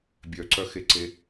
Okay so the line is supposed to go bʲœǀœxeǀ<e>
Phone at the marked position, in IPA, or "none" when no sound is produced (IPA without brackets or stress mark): e